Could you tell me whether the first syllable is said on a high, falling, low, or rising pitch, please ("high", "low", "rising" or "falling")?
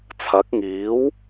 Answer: rising